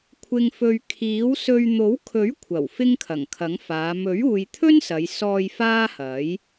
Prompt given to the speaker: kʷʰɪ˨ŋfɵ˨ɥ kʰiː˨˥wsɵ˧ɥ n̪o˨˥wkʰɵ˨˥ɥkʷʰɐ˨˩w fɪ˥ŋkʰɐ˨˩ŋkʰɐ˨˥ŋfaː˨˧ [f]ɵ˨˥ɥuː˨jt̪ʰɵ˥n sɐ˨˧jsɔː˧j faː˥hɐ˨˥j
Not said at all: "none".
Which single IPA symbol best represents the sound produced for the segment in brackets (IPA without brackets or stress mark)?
m